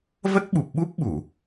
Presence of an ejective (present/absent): absent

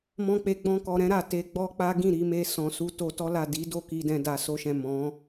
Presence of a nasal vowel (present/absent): present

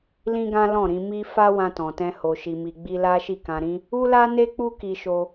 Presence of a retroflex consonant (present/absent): absent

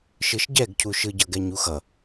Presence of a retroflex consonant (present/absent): absent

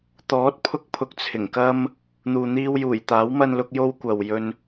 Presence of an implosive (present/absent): absent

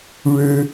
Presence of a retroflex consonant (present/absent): present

